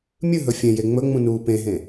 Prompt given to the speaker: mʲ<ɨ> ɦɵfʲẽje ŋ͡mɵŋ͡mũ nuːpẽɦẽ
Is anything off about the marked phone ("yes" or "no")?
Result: no